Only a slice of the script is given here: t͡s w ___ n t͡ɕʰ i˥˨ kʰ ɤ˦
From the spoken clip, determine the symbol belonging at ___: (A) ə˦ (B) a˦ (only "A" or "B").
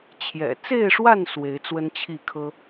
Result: A